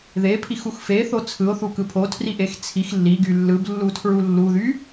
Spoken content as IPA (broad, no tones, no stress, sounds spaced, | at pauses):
ð e pʰ i x u x f e θ o t͡sʰ ɯ o̯ θ u k ɯ pʰ o tʰ r i ʔ e x t͡sʰ i x lː i ɡ y lː ɯ b lː u tʰ ɹ u lː u ð y